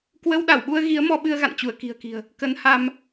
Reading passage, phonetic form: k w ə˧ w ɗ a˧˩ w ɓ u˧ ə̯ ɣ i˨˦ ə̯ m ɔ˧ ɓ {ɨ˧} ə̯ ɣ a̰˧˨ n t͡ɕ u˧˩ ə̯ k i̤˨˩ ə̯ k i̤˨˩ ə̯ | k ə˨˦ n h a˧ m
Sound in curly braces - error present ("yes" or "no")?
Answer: no